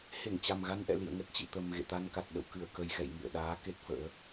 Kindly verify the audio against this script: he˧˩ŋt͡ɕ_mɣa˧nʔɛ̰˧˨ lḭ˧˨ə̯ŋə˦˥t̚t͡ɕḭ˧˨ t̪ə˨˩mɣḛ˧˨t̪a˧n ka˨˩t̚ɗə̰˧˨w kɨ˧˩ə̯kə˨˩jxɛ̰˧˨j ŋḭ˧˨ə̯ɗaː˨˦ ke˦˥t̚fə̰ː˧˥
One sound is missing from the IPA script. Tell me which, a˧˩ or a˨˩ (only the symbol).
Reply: a˨˩